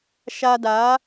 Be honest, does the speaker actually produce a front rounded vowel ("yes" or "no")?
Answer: no